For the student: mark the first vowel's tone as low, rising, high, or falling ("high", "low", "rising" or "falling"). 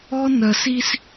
high